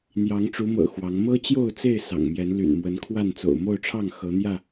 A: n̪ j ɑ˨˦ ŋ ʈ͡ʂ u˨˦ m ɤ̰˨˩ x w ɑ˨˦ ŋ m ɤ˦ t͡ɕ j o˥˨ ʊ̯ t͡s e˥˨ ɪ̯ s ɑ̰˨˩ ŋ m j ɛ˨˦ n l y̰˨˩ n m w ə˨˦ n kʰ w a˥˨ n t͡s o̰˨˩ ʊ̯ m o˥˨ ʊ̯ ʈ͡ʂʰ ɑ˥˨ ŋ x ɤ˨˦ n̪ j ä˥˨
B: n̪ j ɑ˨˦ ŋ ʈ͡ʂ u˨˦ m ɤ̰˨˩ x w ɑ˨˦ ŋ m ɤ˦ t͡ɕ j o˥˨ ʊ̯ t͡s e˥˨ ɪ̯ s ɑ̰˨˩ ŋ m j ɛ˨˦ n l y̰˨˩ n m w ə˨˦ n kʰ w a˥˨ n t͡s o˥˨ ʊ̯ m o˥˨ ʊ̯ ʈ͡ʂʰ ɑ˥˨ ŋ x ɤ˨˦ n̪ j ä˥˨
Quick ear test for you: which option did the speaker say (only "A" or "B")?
A